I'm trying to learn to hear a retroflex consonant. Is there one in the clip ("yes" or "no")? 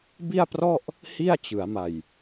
no